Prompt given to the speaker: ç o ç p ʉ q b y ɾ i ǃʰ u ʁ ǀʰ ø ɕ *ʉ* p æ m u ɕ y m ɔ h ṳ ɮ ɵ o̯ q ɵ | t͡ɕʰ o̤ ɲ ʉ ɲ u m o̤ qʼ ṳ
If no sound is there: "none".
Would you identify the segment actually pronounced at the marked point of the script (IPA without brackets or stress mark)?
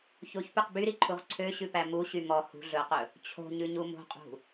ʉ